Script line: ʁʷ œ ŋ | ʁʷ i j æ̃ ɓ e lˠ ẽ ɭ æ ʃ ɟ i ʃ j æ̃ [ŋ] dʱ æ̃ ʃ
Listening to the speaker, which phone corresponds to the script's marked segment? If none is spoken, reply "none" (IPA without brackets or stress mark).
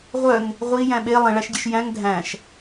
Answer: ŋ